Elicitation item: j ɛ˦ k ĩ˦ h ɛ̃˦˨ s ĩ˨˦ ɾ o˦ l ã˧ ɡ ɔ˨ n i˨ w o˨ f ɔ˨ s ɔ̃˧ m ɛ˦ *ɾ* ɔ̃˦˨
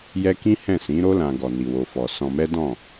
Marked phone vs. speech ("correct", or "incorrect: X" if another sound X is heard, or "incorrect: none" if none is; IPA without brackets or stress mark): incorrect: d